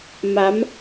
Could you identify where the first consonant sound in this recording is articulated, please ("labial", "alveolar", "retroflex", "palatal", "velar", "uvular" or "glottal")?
labial